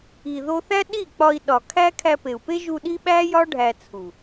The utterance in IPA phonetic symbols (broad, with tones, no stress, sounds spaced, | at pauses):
i˨ ð o˧ θ æ˦ ɗ i˦˨ k͡p ɒ˧ i̯ ɗ ɒ˨ kʰ æ˦ kʰ æ˧ p e˨ u̯ p e˦ ʒ u˧ ɗ i˦ ɓ æ˦ j ɒ˦ ɖʱ æ˧ t͡sʰ u˨